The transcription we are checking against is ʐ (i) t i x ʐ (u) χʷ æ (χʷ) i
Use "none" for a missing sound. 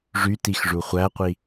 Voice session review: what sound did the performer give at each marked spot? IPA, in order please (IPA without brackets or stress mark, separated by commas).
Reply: y, u, qʷ